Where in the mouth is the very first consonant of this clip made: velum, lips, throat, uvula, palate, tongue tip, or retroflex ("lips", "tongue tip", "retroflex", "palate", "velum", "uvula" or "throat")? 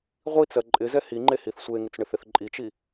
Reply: uvula